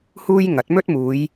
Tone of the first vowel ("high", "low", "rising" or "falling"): high